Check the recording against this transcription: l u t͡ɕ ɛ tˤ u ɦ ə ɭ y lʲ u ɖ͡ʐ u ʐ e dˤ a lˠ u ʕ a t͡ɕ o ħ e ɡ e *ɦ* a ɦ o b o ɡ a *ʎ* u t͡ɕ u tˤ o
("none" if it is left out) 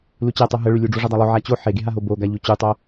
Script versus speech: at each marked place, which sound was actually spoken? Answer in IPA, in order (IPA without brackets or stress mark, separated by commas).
ɦ, ʎ